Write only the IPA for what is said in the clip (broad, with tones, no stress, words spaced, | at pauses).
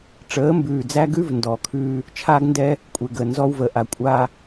ʈ͡ʂəː˨˦mbʉː˨d͡zæ˦ɡʉ˦v ndɔː˨kʰʉː˦ | t͡ʃʰaː˦ɡndɛ˦ | kʷʼe˨ɡəː˨ nzɔ˦wvəː˨ ʔa˨kʷʼaː˦